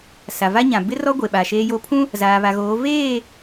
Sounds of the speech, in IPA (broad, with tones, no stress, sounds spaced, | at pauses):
s a˨ v a˦ ɲ ã˨ b ɪ˦ r ɔ˦ ɡʷ e˨ ɓ a˨ ʃ eː˦ j o˦ pʰ ũ˦ | z aː˨ β a˨ ɣ oː˨˦ v eː˦˨